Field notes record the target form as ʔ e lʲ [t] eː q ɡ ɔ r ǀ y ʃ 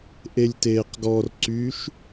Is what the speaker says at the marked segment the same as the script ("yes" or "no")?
yes